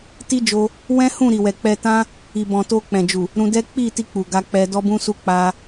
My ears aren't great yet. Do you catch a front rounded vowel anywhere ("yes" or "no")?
no